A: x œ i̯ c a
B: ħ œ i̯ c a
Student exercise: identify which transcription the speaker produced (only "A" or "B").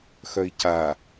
A